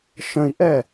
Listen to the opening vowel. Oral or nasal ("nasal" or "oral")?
nasal